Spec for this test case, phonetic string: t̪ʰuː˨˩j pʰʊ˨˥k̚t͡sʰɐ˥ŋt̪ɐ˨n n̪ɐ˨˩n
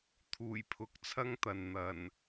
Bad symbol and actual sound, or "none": none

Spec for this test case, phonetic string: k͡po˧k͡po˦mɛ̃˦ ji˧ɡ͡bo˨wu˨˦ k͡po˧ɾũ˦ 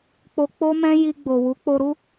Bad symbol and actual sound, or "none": ũ˦ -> u˦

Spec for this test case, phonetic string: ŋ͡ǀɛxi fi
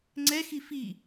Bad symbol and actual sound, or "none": none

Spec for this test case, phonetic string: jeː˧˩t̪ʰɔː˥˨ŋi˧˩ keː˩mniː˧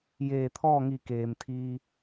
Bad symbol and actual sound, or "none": n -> t̪ʰ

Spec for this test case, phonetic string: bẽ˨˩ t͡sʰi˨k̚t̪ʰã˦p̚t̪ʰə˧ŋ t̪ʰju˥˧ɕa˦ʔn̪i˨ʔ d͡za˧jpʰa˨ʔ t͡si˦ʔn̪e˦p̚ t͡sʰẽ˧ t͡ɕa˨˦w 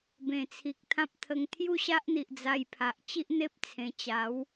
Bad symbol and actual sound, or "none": t͡s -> t͡ɕ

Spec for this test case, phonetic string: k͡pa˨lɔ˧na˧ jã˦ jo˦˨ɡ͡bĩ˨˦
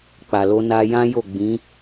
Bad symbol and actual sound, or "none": ɔ˧ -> o˧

